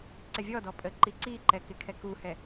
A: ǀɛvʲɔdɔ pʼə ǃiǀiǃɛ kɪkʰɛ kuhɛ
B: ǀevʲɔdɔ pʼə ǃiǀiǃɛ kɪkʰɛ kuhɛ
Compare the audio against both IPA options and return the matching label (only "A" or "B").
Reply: A